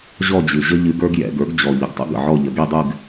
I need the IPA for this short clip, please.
ʑ ɔ˥˧ d͡ʑ ɨ˨˩ ʑ ə˥ ʎ ɨ˧˥ ɡ ə˞˥ ɡ j ɛ̰˩˧ ɡ ə˞˩˥ ɡ d͡ʑ ɔ˨˩ ʎ ə˨˩ ɡ tˤ ə̰˥ ɡ ə̰˨˩ ʕ ɔ˥˧ ʎ ə˩˧ ɡ i˥˧ dˤ ɨ˥˧ ɡ

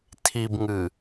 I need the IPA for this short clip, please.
tʰ i b ŋ ɨ

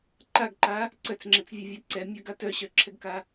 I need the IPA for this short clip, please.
ǃ a ɡ ǃ a | ǀ œ t͡s ŋ͡ǁ ɛ t͡s vʲ ɛ vʲ ɛ ǀ ɛ mʲ œ ɡ a t œ ɕ œ ǁʰ ɛ ɡ k a

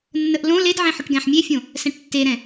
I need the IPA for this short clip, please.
nː ə ʔ l õ l e d ʕ ẽ ħ ʏ ʈ ɡ ɛ̃ ħ mʲ e fʲ õ | s ɛ̃ ʈ tː e ɾ ɛ̃

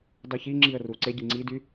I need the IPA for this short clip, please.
dˤ u ç i ŋ͡ǁ i ə̯ r u ǀ e ɟ i ŋ͡ǀ i d y

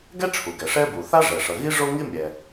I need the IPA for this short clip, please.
ɡ ɛ˥ ʈ͡ʂʰ u˩ ɡ ɛ˩ ʂ ɛ˥ b u˩ θ a˥ ʐ ɛ˩ ʂ ʌ˩ ɣ i˥ ʐ o˥ ŋ i˥ mʲ ɛ˩

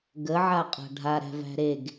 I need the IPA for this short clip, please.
ɡ ə ʕ a qʼ a̤ ɖʱ a ɾ æ̤ v æ̤ ɾ e ɡ

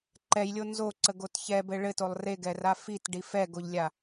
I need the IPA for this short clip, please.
ǃ ɛ j lʲ o n z o ǀ ə ɡ o t ç ɛ b ɘ ɭ ɘ t o lˠ r e ɡ ɛ r a f i t ɖ i f ɛ ɡ o ʎ lʲ a

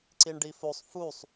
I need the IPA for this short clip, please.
ǀ i ɳ ɖ i f o sˤ f u sˤ

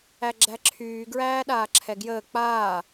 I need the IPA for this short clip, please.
æ ɡ͡ǁ æ ǁʰ yː ɡ ɹ æː ɗ aː ǁʰ ɛ ɡ j əː k͡p aː

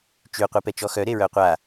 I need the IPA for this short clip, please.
t͡ʃ y qʷ i p ɛ t͡ʃ ɔ x œ ɾ e ɹ œ qʷ a

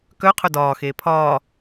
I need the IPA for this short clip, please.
k œ qʰ œ d ɒː x eː pʰ ɒː

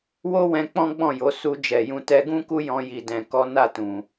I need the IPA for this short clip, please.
w o˦ w ɛ̃˧ k͡p ɔ̃˦ ɡ͡b ɔ̃˦˨ j o˨˦ s u˧ d͡ʒ ɛ˨ j ũ˧ t ɛ˧ ɡ ũ˦ k u˦ j ɔ̃˧ j i˨ d ɛ̃˨ k ɔ˨˦ n a˦˨ t ũ˨

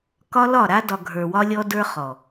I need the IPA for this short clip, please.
k ɒ˦ l ɒ˦˨ ɾ a˦ d ɒ˨ ɡʱ ə˞˨ w ɒ˦ lʲ ɔ˦ d ə˞˦ χ ɔ˨

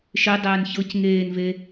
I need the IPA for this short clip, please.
ʃ e dˤ ɛː n ç ɤ c ŋ eː n v e

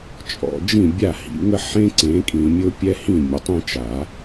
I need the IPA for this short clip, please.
t͡ʃʼ ɔ̰˨ d͡ʒ ĩ˥˨ bʲ a˥˨ h ḭ˨˦ ŋ ə˥ ħ ẽ˥ ǀ ẽ˨˦ kʼ ĩ˨ mʲ ʊ˥ pʲ ɛ˥ h ĩ˥˨ mʲ ə˨ tˤ ẽ˥ t͡ʃ a˨˩˦

